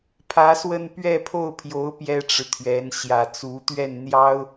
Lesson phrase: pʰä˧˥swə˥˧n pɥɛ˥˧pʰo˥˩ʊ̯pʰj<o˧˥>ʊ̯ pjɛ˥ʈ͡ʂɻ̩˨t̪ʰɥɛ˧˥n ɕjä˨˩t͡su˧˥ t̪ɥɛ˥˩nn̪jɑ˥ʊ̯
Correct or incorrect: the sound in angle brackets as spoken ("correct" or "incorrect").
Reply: correct